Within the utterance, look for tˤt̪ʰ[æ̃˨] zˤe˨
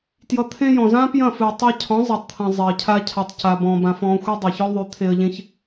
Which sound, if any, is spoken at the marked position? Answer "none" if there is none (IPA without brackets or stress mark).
ɐ̃˨